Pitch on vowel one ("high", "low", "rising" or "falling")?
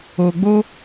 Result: low